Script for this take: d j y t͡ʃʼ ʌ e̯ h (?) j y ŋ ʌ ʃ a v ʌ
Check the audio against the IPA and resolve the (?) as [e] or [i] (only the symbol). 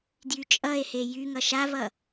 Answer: e